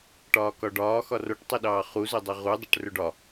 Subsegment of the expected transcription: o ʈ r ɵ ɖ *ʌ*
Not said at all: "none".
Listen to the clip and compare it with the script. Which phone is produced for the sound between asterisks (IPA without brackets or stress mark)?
ɒ